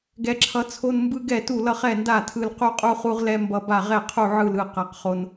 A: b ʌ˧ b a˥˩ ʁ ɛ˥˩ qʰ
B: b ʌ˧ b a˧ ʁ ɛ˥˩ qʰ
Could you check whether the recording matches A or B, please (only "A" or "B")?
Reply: A